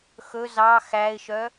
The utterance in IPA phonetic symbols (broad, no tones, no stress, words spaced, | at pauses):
xɵ zɑ xæɪ̯ʃœ